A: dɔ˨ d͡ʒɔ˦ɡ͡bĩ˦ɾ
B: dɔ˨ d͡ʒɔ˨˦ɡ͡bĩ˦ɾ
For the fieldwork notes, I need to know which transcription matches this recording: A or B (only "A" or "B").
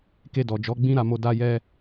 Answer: B